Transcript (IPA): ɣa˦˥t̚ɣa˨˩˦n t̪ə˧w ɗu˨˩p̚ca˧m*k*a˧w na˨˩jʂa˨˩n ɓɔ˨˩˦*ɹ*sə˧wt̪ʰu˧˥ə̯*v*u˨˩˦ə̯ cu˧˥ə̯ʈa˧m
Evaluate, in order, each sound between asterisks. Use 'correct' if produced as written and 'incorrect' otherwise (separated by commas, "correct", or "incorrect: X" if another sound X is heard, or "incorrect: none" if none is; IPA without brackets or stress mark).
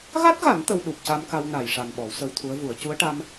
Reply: correct, incorrect: w, correct